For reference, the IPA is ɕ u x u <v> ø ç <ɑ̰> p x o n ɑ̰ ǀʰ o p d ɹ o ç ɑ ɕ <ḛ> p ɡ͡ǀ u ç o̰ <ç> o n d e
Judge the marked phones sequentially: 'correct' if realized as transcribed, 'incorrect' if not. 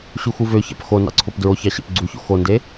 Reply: correct, correct, correct, incorrect: x

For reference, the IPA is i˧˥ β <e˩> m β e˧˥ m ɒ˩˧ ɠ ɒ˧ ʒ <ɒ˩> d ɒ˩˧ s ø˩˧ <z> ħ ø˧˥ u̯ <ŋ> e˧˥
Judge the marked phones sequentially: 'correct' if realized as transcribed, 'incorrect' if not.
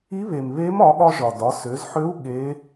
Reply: correct, correct, correct, incorrect: ɠ

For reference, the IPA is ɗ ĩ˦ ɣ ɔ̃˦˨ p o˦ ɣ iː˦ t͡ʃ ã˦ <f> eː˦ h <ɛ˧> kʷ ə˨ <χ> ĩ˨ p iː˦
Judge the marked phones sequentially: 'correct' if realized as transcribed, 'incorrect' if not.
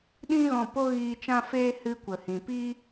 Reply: correct, incorrect: ɨ˧, incorrect: h

